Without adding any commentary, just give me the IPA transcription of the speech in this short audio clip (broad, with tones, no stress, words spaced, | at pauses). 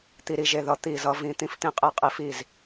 t̪i˧ɾi˧ʒe˧ðʌ˧ t̪i˥˩zʌ˨˥vĩ˨˥ t̪ĩ˥˩ft̪ĩ˥˩qʼi˥˩ qʼi˧fi˥˩z